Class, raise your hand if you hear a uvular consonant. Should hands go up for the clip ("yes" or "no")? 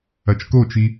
no